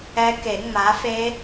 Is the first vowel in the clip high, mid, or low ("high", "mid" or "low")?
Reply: mid